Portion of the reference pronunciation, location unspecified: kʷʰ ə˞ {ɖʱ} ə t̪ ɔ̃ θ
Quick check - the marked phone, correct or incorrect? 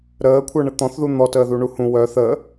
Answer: incorrect